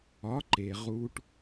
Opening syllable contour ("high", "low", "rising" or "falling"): rising